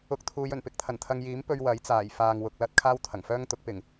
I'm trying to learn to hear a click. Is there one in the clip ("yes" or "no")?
no